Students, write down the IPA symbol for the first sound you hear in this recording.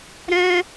ɾ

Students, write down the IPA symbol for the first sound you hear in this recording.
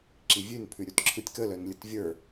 ǁ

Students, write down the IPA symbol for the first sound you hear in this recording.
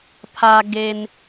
pʰ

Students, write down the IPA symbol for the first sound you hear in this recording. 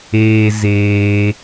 eː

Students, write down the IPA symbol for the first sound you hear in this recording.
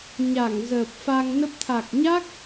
ɲ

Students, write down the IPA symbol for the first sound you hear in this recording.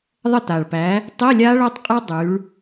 ðˤ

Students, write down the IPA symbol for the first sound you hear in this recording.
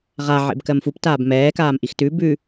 ʁ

